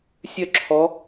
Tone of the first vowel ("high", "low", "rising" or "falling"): falling